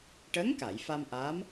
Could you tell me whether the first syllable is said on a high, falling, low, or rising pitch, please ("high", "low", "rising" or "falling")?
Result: rising